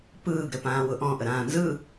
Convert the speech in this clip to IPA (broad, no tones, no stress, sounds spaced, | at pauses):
p ɯː ɡ ɾ ɘ p ãː w ʊ ʔ ɔ̃ ʔ ə ɾ ãː n z ɯ